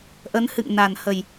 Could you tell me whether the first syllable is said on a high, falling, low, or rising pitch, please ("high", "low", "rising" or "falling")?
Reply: rising